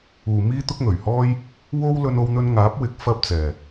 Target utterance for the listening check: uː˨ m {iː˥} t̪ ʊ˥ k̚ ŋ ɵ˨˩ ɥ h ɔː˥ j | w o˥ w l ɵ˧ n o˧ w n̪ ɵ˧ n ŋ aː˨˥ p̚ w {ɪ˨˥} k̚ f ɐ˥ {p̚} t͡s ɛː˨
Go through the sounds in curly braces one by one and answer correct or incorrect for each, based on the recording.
correct, correct, correct

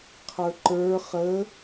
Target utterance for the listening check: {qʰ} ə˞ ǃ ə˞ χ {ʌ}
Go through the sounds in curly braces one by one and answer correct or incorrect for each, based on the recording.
correct, incorrect: ə

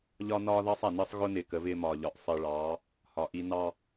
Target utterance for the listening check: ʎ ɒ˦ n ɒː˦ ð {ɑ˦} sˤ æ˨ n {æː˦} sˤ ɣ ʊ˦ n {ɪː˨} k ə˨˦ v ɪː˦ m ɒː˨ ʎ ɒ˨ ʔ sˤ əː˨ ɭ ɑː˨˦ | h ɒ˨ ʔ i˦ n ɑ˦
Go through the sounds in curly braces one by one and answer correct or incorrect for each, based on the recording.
correct, incorrect: əː˦, correct

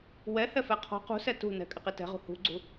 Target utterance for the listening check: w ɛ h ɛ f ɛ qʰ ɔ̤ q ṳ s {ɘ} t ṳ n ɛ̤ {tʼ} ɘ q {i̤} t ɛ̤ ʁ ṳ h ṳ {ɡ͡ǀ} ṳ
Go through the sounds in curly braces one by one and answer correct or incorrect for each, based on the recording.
incorrect: ɛ, incorrect: kʼ, incorrect: i, correct

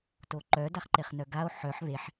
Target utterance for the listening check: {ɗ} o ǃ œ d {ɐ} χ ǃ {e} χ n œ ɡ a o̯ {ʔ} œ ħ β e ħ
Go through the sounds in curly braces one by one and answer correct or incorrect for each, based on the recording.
incorrect: t, incorrect: a, correct, incorrect: ħ

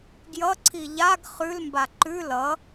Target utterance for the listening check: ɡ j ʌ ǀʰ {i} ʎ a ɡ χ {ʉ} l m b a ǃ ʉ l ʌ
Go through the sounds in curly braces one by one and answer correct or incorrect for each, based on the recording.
correct, correct

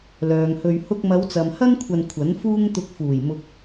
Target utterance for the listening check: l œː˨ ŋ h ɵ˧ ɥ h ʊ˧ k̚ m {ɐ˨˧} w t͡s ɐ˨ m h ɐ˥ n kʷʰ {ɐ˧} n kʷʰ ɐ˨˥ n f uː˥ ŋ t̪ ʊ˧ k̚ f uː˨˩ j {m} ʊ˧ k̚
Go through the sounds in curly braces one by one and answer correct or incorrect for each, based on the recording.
correct, correct, correct

